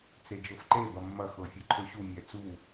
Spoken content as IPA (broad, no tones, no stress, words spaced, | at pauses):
t͡sed͡ʒɤfǃe bɐmːɐ xɤfʲeǃʰøɕu mʲɛt͡su